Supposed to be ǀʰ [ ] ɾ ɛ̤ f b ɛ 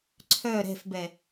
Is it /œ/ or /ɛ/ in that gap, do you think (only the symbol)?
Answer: œ